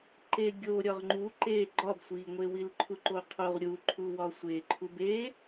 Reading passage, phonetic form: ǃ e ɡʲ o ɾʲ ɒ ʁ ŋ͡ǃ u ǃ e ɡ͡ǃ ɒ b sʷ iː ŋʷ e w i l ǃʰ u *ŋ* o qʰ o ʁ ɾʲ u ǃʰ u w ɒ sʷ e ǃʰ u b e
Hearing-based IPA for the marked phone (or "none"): ǃ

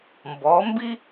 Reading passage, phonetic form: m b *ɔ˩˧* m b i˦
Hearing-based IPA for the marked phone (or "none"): ɔ˩˧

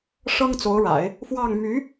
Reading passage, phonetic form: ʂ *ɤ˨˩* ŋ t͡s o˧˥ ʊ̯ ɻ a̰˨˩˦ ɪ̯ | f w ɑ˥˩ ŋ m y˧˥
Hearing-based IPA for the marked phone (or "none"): ɤ˥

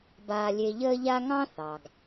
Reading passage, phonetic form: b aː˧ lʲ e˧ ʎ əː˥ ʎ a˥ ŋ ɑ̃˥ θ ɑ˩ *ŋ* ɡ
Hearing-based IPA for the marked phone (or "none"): none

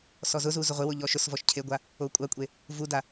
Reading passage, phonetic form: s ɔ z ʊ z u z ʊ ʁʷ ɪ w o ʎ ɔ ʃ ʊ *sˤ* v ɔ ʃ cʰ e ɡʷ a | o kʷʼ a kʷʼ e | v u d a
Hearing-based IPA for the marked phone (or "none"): s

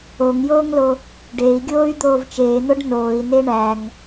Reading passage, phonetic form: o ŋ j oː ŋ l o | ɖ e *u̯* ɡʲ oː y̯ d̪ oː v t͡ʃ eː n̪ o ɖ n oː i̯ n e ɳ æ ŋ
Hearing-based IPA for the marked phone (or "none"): i̯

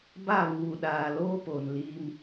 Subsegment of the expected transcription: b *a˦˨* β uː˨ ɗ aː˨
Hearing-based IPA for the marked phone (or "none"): a˦˨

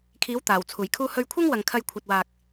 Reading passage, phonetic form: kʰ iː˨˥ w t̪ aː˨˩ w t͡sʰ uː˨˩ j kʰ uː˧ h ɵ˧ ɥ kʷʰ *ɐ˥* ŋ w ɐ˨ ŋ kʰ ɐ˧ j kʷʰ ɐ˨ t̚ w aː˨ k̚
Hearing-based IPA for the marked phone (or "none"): ɐ˥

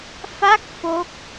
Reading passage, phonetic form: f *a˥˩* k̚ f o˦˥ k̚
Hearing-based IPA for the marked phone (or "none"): a˥˩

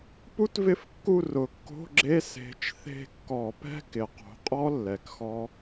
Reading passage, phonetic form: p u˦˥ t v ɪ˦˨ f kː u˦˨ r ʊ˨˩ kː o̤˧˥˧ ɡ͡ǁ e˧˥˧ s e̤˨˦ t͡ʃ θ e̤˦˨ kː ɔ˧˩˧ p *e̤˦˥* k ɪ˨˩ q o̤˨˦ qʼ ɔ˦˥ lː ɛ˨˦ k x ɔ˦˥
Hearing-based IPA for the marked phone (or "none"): ɛ̤˦˥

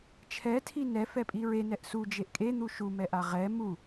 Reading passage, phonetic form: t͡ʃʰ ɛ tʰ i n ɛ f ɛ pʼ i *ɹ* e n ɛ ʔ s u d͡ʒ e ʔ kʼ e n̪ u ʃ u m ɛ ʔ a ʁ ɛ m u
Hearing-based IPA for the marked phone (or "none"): ɹ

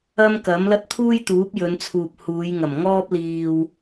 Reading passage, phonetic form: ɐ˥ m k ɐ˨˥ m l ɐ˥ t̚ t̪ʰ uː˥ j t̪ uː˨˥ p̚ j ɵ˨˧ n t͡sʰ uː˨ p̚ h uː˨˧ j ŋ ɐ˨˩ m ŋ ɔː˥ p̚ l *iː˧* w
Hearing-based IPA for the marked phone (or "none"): iː˧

